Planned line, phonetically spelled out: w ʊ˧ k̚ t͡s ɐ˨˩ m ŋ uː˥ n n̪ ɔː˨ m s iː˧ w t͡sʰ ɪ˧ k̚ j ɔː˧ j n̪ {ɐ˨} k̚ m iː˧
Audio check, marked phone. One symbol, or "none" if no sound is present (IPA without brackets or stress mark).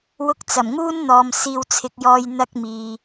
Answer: ɐ˥